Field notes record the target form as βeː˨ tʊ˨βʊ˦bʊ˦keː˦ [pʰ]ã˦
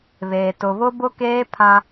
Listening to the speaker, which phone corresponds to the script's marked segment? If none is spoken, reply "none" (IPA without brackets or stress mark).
pʰ